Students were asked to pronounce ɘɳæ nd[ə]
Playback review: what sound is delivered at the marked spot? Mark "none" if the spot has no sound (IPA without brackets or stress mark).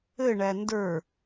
ə˞